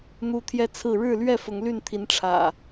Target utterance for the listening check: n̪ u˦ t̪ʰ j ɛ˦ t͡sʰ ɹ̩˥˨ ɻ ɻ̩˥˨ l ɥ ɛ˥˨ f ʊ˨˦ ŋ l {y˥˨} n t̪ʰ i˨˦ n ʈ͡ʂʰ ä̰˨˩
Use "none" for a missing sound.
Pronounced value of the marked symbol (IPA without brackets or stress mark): y˥˨